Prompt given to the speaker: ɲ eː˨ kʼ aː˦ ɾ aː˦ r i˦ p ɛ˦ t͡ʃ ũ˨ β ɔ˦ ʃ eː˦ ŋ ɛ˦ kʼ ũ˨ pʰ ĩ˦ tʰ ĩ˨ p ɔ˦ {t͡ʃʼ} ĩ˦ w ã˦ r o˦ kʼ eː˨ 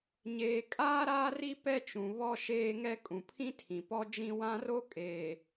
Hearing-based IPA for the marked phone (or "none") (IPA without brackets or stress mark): d͡ʒ